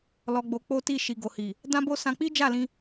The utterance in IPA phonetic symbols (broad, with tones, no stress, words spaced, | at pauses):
lɔ˧ɡ͡bo˧k͡po˦ti˦˨ ʃi˨ɡo˨hi˨ | dã˦bo˦ sã˧k͡pi˦d͡ʒa˦˨lĩ˧